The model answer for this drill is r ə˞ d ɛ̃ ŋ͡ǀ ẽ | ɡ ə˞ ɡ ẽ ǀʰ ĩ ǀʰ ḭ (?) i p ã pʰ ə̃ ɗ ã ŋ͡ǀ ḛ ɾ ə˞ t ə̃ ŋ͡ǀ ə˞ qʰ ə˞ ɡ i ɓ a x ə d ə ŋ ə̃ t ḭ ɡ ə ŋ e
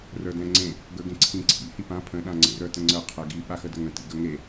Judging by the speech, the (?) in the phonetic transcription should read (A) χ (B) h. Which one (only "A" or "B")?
B